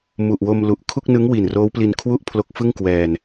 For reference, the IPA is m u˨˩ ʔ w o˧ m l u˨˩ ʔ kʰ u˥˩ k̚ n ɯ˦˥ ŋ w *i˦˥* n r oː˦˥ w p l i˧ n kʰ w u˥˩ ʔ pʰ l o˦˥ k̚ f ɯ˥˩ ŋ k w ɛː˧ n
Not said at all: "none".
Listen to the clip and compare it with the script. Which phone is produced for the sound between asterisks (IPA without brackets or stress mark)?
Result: i˨˩